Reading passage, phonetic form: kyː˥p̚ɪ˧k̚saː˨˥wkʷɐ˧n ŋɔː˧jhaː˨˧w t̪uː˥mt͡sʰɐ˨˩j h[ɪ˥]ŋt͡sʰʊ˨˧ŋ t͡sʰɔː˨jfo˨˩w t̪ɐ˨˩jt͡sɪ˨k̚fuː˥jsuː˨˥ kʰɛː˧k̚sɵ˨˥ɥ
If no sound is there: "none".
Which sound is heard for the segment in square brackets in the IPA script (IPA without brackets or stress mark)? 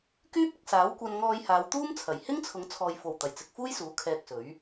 ɪ˥